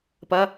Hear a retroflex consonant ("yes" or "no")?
no